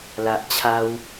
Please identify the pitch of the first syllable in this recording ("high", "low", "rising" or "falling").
low